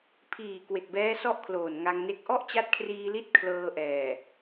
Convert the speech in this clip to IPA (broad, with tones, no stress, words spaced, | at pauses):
pʰiː˨˩ kwe˨˩k̚bɛː˦˥ sɔ˥˩ʔkʰloː˨˩nŋa˧ŋne˦˥k̚ ʔɔ˥˩ʔt͡ɕa˦˥t̚kʰriː˧li˦˥t̚ kʰlɤː˧ʔɛː˨˩